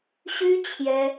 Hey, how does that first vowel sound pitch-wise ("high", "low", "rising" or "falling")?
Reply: high